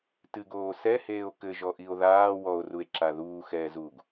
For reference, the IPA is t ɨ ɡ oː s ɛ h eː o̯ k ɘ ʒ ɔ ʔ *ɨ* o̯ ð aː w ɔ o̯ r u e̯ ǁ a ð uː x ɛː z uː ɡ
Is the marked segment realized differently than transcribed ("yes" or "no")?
yes